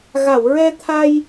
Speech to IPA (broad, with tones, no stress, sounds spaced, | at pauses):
ɣ a˨˩˨ w ɹ ɛ˧ t̪ʰ a˧ j